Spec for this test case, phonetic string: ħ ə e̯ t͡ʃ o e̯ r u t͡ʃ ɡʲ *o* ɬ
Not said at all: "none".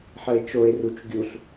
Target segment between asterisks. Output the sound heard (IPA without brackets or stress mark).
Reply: u